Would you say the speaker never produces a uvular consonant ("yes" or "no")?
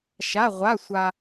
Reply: no